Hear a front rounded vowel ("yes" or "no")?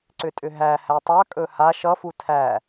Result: yes